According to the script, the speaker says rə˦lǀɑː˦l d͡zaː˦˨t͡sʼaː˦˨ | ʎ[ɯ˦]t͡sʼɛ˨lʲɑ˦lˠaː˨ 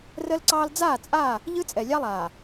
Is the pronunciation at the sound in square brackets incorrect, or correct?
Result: correct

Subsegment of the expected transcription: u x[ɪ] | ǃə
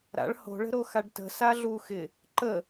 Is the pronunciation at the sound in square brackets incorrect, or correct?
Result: correct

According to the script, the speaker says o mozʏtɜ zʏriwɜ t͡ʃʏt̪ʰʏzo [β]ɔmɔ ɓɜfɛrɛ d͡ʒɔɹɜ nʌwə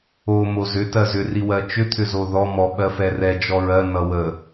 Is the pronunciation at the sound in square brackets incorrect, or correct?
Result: incorrect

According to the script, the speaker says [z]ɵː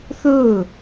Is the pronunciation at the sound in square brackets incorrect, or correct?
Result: incorrect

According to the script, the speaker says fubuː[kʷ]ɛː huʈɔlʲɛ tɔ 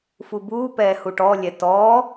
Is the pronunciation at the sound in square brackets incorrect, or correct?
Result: incorrect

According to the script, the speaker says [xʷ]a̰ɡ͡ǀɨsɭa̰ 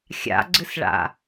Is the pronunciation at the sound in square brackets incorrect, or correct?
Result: incorrect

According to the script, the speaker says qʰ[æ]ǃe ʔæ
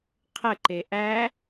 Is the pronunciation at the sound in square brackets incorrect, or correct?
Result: incorrect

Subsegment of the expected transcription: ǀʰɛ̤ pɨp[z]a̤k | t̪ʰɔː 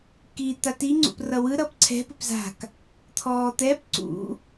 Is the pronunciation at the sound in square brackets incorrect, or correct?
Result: correct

